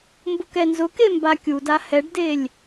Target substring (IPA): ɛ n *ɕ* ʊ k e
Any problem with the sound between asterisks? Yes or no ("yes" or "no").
yes